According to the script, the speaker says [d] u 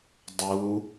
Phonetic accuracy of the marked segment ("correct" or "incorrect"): incorrect